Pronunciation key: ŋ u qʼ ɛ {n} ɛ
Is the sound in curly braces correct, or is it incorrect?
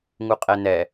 correct